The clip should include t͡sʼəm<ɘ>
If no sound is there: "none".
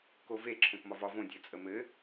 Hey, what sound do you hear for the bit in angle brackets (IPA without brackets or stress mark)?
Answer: ɘ